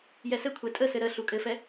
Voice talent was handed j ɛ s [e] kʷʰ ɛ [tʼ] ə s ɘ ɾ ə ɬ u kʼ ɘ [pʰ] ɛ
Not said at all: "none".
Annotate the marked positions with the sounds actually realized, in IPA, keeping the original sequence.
ɘ, tʼ, f

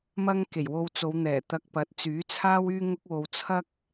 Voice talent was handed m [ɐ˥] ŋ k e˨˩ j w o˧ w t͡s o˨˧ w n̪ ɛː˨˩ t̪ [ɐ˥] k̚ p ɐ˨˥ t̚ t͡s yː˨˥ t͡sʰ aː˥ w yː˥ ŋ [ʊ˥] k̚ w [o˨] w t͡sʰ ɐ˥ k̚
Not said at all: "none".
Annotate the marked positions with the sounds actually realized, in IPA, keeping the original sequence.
ɐ˥, ɐ˧, ʊ˥, o˧

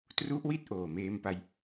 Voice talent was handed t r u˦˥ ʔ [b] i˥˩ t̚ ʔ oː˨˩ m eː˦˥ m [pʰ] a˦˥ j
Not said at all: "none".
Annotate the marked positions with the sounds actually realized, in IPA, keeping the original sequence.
w, p

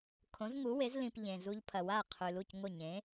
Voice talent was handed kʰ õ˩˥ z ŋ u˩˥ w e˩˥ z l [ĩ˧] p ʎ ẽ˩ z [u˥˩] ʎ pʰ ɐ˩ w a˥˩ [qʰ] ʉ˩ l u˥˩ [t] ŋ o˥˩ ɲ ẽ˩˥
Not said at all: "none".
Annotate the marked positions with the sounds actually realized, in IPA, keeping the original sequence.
ĩ˧, u˧, qʰ, c

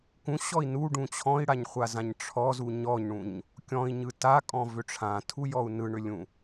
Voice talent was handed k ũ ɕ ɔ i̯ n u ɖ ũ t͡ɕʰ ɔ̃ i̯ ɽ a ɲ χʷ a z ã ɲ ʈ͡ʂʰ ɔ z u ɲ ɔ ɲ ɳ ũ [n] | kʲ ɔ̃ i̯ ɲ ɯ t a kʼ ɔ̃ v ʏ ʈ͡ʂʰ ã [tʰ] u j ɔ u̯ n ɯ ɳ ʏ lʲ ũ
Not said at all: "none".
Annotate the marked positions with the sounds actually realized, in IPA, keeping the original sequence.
ɲ, tʰ

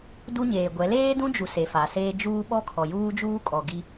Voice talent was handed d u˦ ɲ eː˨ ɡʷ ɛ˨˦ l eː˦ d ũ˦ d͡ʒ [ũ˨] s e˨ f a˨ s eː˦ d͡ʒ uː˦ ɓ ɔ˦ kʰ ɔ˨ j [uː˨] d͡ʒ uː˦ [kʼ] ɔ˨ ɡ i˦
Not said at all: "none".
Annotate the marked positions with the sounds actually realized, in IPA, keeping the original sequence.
u˨, uː˦, kʼ

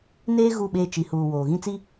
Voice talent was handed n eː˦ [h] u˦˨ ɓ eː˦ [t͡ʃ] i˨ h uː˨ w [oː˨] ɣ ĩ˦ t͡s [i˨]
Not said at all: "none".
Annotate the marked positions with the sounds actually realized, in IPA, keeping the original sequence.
ɣ, t͡ʃ, oː˨, i˦

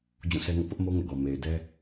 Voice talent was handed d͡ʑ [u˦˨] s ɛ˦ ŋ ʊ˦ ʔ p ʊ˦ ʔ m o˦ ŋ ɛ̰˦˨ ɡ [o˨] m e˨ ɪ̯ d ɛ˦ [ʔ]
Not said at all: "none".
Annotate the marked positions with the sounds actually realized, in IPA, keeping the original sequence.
ũ˦˨, ɔ˨, none

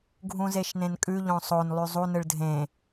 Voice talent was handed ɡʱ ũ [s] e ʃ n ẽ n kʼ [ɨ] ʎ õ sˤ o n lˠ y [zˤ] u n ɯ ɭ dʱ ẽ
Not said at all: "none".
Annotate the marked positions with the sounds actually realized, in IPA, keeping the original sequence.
z, ʉ, zˤ

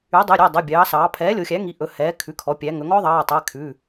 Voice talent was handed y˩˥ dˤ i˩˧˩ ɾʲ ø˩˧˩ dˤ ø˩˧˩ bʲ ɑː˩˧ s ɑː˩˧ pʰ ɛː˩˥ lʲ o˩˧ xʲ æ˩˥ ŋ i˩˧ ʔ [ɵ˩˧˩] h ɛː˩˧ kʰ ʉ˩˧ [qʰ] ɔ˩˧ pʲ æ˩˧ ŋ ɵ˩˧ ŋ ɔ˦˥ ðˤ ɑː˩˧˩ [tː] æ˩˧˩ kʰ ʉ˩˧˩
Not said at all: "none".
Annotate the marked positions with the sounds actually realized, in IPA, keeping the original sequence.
ɵ˩˧, kʰ, tˤ

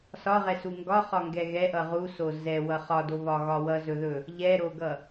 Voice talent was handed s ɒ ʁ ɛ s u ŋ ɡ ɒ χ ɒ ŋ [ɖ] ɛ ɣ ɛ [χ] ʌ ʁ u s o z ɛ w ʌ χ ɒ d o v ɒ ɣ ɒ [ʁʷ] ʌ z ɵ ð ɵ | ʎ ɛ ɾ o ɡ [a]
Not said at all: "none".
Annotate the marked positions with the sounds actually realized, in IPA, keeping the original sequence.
ɡ, ʔ, w, ʌ

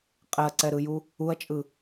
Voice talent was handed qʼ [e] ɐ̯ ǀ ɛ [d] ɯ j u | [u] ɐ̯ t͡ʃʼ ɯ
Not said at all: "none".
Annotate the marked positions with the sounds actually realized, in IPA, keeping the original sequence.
ɛ, ɾ, u

